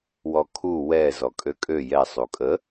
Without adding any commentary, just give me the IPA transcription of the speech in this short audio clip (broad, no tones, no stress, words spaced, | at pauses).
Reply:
wɔkʰu wɛ zɔkʼøkʼø jɛ sˤukʼə